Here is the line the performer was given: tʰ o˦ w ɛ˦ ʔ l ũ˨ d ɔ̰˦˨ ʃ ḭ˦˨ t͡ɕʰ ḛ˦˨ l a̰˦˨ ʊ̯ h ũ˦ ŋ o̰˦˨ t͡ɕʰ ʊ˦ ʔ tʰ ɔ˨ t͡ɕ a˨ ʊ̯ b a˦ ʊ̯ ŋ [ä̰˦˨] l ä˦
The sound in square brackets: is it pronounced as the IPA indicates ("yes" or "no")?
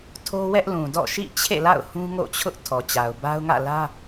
yes